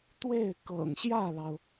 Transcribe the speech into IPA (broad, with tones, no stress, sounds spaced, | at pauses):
t̪ w e˥˩ ɪ̯ k ɤ̰˨˩ ŋ ɕ j ä˥˩ l ɑ˩ ʊ̯